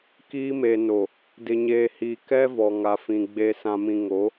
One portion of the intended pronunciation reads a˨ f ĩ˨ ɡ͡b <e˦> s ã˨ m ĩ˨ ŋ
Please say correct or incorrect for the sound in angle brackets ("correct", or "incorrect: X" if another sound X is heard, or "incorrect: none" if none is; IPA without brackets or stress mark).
incorrect: e˨